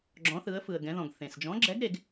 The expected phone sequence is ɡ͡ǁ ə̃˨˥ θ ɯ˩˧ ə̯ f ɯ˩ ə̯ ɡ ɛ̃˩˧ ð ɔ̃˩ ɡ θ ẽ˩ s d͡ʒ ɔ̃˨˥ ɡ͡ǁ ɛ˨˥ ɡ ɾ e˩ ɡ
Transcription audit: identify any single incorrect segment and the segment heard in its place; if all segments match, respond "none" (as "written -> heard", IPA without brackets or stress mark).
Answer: ə̃˨˥ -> ɔ̃˨˥